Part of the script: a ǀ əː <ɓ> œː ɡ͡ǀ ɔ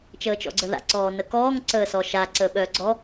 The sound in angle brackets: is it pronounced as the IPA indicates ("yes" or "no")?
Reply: yes